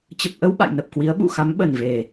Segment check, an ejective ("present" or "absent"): absent